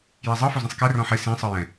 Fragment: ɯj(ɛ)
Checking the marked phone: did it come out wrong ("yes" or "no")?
yes